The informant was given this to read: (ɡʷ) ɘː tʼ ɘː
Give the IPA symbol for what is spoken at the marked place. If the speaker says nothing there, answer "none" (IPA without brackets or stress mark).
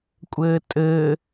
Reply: kʷʼ